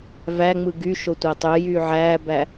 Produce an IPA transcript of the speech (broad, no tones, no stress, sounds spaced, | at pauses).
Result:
v æ ŋ͡m ɯ ɡ y ʃ o tʷ æ tˤ ø j yː ʕ æː b æ